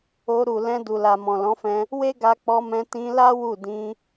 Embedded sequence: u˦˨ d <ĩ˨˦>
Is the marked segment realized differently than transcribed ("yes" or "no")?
yes